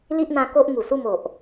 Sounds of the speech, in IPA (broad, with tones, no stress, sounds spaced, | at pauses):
l i˦ ʔ n̪ ã˧ k o˦ ʔ ŋ u˨˩ s u˥˧ m o˨ ʔ